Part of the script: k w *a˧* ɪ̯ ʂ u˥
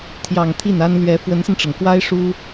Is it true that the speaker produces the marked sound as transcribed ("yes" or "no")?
no